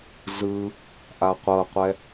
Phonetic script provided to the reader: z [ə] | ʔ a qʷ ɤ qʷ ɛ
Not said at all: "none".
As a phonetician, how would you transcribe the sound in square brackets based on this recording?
ɯ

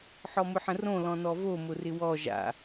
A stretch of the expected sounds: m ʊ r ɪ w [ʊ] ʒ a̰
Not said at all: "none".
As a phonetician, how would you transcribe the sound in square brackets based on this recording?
ɔ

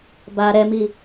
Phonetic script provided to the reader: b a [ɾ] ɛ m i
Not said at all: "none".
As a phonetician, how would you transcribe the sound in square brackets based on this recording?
ɾ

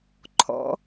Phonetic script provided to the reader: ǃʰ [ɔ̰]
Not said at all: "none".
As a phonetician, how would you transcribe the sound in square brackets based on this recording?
ɔ̰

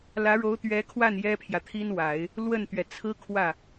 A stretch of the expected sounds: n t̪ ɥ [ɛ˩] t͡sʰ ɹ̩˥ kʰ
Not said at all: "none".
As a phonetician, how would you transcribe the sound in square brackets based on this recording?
ɛ˩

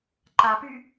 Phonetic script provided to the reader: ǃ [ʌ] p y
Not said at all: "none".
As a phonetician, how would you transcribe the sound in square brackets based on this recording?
a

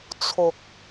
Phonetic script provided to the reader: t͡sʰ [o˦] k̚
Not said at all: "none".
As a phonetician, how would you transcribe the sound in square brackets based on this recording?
o˨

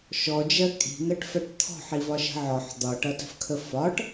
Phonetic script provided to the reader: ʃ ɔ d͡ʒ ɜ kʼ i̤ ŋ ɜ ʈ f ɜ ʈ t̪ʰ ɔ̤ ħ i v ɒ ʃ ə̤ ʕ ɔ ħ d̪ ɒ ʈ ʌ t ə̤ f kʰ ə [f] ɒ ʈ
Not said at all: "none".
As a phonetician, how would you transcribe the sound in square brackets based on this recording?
f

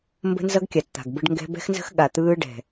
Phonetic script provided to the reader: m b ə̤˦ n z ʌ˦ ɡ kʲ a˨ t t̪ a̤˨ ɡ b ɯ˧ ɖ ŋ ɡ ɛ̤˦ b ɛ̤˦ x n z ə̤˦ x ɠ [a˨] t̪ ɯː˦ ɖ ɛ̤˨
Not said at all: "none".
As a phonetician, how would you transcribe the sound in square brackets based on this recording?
a˨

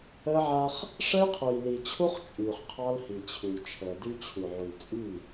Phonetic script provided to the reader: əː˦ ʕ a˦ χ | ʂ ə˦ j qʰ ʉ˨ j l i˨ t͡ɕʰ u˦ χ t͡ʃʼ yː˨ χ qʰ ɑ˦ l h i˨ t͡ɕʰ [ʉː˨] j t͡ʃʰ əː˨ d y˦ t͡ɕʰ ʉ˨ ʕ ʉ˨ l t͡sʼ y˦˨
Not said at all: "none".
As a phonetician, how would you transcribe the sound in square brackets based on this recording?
ʉ˨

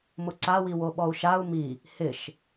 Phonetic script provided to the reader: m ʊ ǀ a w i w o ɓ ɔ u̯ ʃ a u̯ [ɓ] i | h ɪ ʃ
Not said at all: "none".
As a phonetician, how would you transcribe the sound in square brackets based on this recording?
m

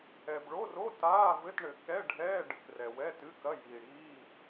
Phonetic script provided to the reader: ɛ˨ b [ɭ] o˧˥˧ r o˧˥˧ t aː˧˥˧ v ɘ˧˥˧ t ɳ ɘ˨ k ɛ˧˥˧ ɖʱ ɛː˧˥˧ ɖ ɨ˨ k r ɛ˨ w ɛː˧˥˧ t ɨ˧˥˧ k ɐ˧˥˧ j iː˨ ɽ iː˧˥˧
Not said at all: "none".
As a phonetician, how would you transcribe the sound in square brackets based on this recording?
ɭ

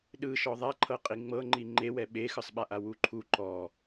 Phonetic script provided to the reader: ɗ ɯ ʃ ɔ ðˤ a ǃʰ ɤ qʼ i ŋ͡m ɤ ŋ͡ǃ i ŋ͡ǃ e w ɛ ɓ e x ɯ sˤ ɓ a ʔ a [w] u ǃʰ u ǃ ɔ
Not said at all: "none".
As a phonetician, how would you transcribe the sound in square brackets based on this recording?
w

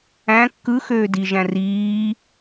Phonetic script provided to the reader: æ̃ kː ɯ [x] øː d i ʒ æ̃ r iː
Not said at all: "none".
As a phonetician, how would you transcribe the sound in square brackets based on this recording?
x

